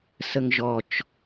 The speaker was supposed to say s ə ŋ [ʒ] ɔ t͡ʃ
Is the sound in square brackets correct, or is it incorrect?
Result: correct